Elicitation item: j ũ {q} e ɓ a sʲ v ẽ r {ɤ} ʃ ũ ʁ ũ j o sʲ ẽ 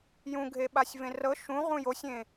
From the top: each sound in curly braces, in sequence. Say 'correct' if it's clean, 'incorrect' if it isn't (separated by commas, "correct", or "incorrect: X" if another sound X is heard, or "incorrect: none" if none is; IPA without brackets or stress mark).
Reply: incorrect: ɡʱ, correct